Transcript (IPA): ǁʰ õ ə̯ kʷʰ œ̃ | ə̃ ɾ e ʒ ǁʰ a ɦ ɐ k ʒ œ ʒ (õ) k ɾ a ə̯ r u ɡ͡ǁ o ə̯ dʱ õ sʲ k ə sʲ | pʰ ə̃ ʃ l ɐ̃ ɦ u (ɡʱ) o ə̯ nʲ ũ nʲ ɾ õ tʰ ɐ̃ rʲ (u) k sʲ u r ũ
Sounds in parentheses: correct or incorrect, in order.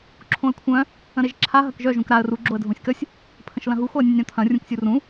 incorrect: ũ, incorrect: x, incorrect: ũ

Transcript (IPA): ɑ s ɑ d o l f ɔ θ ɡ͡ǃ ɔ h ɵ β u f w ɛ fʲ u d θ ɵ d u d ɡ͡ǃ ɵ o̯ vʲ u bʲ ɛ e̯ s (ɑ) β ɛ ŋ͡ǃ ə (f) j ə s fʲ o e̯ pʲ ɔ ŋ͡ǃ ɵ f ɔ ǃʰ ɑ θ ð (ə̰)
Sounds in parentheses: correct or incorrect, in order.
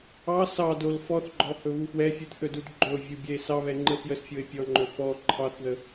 correct, correct, incorrect: ə

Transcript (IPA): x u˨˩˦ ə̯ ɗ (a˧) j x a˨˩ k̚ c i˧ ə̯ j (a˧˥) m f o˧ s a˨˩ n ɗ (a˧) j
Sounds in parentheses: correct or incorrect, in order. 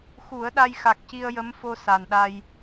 correct, incorrect: ə˧˥, correct

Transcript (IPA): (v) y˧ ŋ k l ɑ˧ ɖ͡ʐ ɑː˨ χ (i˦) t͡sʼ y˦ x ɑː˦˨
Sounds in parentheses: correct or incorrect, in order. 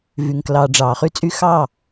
correct, incorrect: y˦

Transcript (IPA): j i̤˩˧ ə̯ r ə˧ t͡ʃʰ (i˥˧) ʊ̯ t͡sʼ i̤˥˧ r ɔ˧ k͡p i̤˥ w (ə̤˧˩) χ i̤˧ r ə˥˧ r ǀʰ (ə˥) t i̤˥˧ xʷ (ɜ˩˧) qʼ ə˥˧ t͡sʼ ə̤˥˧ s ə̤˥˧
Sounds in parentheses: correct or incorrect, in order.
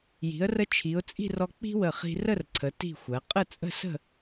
incorrect: i˩˧, incorrect: ə˧˩, incorrect: ə˩˧, correct

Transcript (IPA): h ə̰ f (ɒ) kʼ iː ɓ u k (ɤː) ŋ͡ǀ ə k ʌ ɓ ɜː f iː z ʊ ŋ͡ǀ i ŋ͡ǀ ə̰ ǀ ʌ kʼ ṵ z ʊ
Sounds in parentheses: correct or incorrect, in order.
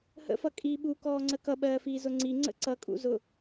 incorrect: ʌ, incorrect: ɔː

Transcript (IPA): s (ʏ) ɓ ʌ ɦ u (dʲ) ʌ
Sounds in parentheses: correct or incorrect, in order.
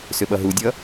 correct, correct

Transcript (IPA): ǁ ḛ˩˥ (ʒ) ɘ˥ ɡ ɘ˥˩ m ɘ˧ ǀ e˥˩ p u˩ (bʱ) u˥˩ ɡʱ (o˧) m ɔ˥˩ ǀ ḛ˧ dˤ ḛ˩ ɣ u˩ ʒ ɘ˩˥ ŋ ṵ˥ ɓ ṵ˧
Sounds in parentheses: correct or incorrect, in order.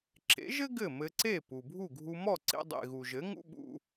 correct, correct, incorrect: u˧

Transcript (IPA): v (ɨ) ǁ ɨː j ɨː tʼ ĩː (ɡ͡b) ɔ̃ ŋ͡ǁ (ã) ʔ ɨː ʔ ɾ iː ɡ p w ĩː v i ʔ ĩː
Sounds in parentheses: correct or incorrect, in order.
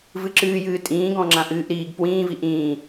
correct, incorrect: ɡ, correct

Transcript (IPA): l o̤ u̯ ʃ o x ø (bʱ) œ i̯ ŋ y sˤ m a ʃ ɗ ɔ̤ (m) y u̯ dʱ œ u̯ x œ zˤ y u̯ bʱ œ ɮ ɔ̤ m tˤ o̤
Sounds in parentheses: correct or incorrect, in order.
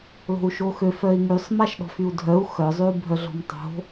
incorrect: f, incorrect: f

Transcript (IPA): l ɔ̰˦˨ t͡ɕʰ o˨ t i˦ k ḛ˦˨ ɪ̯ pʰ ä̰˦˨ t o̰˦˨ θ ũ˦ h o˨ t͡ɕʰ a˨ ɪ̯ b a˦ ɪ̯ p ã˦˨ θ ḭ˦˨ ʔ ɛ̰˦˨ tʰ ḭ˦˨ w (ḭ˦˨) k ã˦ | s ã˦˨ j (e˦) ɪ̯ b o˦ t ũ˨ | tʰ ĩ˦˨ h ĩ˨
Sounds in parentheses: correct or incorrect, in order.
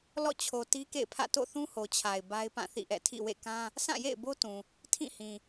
incorrect: ḛ˦˨, incorrect: ḛ˦˨

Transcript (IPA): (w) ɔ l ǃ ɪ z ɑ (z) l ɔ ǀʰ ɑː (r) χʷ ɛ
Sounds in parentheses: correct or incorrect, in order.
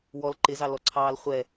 correct, incorrect: none, incorrect: l

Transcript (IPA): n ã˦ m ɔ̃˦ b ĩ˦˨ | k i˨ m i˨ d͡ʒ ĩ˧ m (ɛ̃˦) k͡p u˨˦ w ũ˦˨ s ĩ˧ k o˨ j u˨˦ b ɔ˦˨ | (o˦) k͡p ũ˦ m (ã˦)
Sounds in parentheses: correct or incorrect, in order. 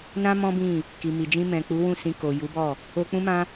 incorrect: ɛ̃˨, incorrect: o˧, correct

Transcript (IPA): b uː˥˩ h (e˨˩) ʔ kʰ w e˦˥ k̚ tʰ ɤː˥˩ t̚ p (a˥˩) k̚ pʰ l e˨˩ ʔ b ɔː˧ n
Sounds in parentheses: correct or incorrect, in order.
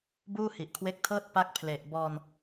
incorrect: i˨˩, correct

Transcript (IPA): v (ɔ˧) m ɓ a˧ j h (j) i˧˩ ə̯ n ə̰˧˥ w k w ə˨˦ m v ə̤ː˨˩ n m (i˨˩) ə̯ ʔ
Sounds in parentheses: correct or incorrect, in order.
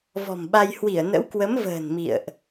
incorrect: ɔ̤˨˩, incorrect: w, incorrect: ḭ˧˨

